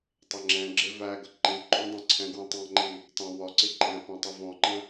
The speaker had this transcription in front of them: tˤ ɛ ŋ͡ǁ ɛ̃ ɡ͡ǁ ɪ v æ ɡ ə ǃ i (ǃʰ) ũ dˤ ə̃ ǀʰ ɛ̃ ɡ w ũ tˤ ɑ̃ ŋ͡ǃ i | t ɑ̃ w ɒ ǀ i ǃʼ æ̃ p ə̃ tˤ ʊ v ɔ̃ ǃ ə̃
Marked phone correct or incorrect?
incorrect